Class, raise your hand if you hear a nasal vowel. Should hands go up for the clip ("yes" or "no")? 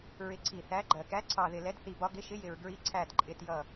no